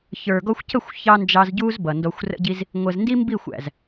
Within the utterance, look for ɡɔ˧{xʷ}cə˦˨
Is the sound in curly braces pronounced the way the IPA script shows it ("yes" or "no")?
yes